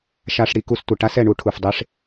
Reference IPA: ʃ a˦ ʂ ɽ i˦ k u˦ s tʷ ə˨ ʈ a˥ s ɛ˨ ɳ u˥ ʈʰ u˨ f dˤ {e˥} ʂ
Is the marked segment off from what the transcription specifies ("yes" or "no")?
no